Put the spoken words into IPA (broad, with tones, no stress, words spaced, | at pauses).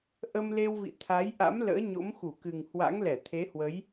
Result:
ʔə˧mle˧wvḭ˧˨ t̪ʰa˨˦jʔa̰˧˥m lə̰ː˧˥ɲo̰˧˥m xu˧˩kɨ˨˩ŋ hwa̰˧˥ŋlɛ˧˩ t̪ʰe˨˦hwə˨˦j